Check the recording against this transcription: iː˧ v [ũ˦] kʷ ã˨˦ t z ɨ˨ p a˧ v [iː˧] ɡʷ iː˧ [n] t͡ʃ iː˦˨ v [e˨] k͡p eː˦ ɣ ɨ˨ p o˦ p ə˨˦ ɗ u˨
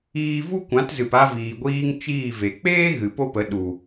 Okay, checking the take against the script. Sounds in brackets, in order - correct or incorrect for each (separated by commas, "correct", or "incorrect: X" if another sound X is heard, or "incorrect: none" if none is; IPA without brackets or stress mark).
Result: incorrect: u˦, incorrect: iː˨, incorrect: ŋ, correct